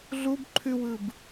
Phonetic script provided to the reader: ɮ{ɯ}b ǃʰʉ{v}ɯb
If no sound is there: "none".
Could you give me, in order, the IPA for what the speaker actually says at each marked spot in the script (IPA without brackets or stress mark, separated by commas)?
u, w